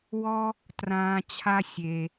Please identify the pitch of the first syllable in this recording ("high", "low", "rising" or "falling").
high